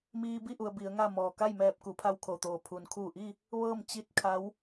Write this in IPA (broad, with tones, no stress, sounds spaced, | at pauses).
m iː˧ b i˥˨ ʔ u˩ ə̯ b i˩˧ ə̯ ŋ a˥˨ m ɔː˩ k a˥˨ j m ɛː˧˩ p̚ k u˩˧ pʰ a˧ w kʰ o˩ t̪ oː˩ pʰ u˩ n kʰ uː˧˩ ʔ i˥˨ | ʋ ɤː˥˨ m t͡ɕ i˧˥ t̚ kʰ a˧˥ w